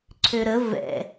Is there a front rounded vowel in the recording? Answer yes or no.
yes